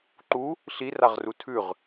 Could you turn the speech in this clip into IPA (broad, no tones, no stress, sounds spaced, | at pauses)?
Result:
ǃ u | ɬ i r a ʁ r u tʰ ʉ ʁ